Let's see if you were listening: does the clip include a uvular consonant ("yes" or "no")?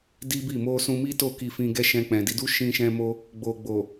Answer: no